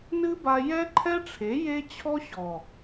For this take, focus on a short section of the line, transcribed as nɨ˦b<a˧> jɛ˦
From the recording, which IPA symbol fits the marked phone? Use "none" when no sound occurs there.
a˧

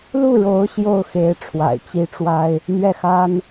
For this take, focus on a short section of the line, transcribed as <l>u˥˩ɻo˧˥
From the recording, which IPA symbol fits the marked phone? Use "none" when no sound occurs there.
l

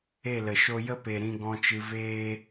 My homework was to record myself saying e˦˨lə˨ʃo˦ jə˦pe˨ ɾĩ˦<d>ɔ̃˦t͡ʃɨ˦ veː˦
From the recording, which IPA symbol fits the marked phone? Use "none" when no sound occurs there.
ɡ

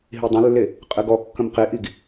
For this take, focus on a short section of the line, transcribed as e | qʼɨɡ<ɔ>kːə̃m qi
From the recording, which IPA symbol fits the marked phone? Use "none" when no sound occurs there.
ɔ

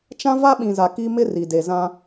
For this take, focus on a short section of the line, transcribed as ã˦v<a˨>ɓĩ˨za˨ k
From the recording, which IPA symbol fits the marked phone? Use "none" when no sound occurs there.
a˦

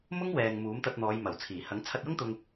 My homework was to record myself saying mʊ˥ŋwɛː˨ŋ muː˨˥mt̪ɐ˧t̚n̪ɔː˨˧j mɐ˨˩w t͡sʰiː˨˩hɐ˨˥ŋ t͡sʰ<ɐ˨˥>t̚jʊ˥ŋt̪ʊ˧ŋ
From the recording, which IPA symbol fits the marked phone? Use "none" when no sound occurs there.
ɐ˧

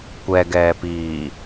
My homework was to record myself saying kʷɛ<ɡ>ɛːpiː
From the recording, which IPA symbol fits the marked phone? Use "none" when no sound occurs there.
ɡ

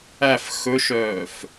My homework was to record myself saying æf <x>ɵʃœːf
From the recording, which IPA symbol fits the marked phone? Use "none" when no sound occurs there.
x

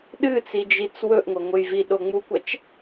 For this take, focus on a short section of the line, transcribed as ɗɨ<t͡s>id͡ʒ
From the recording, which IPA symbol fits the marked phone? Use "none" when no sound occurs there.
t͡s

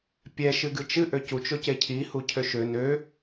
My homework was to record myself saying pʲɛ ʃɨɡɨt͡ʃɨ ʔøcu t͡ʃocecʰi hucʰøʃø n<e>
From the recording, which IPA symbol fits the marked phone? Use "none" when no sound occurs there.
ø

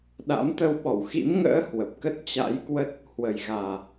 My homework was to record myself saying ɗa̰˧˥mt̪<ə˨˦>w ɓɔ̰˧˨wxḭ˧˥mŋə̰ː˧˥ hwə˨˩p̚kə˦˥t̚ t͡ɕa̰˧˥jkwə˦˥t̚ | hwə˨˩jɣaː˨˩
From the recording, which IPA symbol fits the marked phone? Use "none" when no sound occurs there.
ə˧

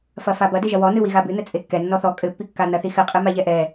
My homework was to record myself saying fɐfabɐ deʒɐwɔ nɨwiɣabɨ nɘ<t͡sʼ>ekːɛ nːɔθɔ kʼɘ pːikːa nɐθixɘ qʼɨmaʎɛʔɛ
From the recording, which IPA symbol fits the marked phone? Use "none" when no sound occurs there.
t͡sʼ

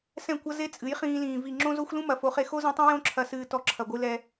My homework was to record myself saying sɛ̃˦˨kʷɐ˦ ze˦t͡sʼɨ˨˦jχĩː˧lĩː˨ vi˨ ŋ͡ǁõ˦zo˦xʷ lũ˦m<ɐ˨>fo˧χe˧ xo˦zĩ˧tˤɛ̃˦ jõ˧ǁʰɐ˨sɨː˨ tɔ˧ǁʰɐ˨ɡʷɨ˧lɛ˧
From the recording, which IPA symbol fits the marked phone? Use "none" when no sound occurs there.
ɐ˨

